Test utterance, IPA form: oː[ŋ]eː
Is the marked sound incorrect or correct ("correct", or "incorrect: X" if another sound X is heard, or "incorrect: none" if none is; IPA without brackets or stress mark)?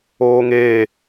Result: correct